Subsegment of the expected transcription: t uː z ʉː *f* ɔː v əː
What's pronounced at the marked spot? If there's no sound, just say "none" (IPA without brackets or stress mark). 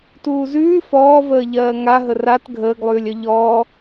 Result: f